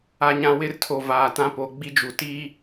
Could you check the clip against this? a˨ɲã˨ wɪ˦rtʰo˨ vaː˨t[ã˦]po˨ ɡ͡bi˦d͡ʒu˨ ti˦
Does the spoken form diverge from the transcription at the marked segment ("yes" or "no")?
no